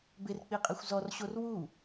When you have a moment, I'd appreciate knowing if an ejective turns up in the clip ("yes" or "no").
yes